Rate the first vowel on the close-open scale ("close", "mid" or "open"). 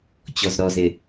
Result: mid